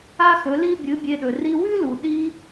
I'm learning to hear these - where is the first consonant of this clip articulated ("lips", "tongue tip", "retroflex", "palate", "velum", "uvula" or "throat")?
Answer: velum